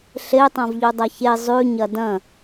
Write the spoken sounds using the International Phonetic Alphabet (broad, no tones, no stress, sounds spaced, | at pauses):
ɬ e tˤ ã v ʎ u dˤ ɐ ç e zˤ ʉ ɲ ɐ d ɐ̃